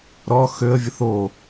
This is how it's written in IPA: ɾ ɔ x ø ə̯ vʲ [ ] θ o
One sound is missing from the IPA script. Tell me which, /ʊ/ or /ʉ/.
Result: ʊ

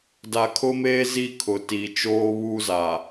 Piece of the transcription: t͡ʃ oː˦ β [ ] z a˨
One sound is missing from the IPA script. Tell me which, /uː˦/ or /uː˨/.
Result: uː˦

